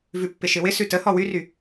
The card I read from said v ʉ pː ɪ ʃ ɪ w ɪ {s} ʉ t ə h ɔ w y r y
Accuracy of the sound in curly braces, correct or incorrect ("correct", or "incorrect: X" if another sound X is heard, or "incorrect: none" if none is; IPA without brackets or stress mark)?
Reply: correct